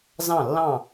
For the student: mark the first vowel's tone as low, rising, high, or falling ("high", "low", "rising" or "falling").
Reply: falling